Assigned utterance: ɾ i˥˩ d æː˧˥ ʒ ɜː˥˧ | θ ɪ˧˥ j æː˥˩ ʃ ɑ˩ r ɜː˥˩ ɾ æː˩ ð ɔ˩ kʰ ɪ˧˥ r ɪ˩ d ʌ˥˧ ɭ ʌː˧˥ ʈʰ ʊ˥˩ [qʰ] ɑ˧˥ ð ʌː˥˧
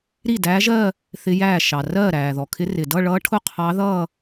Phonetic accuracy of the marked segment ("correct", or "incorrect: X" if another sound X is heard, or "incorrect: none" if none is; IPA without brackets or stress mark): correct